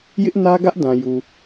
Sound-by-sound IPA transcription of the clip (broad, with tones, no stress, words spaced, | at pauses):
jɪ˦ʔnä˦ɡä˦ʔ dã˨ju˨